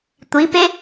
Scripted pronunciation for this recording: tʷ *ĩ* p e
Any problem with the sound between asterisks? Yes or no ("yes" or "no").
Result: yes